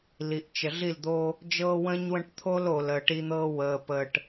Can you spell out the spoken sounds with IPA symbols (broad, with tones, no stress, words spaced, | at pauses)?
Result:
li˨ʔt͡ʃə˨ɮi˦˨ld̪oː˦ | d͡ʒɤː˦wə̃ː˦ɲwə̃˦ʈ t̪ʰo˦l oː˨ləː˨ʈi˦n̪ɤː˦ wəː˨pəː˨ʈ